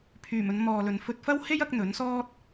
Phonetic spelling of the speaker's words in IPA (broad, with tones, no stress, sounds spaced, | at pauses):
pʰ yː˨˩ m ɵ˨˧ n m ɔː˨ l ɵ˨ n f ɵ˧ t̚ f ɐ˥ w h e˥ j ɐ˧ k̚ n̪ ɵ˨˥ n s ɔː˥ t̚